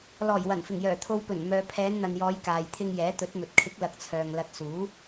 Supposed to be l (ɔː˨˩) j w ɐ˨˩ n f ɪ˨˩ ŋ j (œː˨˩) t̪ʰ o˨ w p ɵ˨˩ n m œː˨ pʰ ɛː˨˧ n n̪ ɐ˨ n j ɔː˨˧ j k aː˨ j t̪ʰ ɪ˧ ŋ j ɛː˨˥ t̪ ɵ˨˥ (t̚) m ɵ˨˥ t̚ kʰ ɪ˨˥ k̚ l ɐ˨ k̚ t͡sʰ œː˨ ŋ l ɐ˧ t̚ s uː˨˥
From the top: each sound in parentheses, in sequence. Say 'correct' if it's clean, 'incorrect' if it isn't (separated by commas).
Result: correct, correct, correct